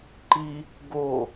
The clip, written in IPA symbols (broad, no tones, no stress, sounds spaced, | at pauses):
ǃ i | ɡ o